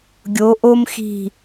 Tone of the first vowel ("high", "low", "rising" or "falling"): rising